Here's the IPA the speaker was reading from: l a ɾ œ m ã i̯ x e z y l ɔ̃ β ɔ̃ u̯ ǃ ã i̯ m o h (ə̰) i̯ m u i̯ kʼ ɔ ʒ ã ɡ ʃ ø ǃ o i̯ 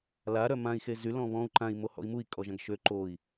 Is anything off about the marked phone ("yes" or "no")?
yes